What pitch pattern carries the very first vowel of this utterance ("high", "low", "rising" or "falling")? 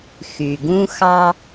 low